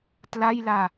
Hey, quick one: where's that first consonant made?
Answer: tongue tip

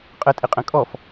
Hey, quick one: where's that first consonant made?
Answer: uvula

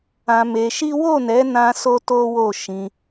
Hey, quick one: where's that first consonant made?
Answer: lips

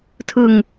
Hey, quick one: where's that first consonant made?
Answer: tongue tip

